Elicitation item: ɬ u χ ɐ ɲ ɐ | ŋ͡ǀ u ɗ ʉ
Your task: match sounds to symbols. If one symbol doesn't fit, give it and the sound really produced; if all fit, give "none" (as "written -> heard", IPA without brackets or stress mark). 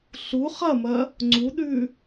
ɲ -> m